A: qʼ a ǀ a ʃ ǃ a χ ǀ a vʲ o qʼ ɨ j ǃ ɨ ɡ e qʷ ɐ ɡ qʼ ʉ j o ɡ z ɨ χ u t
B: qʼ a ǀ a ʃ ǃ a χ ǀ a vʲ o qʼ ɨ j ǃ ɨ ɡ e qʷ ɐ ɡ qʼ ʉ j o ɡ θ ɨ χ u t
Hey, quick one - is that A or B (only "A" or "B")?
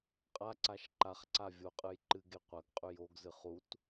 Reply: A